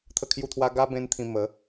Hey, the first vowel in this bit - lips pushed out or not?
no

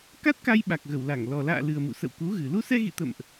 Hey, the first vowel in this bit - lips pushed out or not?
no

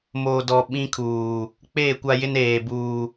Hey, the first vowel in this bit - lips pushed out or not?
yes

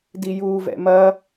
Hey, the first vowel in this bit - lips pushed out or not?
no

